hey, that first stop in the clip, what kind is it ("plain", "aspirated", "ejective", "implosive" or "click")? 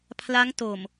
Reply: aspirated